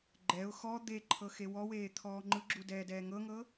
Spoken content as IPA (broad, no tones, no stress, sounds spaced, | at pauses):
ɡ͡ǃ ɛ ʊ̯ x ɔ d̪ e ǃʰ ɤ x e w ɔ w eː t̪ʰ ɔː ŋ͡ǃ ɯ ɡ͡ǁ u d ɛː d ɛː ŋ ɤ ŋ ɤ